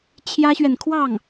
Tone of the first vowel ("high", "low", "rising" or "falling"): high